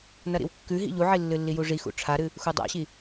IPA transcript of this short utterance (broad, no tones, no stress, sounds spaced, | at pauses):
n ɐ ɾ ḭ w kː ʉ ɦ ḭ ʎ u ʕ i lː ɨ lː i j u ʐ i x ṵ ʈ͡ʂʰ a ɾ ɨ | x u dˤ a̰ ɕ i